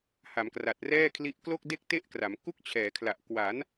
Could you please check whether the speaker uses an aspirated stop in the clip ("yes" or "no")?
yes